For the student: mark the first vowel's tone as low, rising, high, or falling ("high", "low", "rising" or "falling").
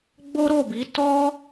high